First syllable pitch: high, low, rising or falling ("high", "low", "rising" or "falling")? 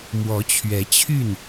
rising